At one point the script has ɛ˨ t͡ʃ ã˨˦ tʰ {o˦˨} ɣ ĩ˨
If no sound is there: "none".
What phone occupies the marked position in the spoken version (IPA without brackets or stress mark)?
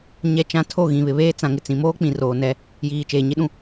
o˦˨